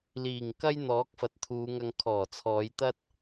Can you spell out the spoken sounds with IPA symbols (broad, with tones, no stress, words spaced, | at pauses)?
liː˨˩ŋkɐ˥j n̪ɔː˨˥k̚fɐ˨˥t̚t̪ʰuː˨˧ŋɐ˧ŋ kʰɔː˨˩t͡sʰɔː˨˧jt̪ɐ˥t̚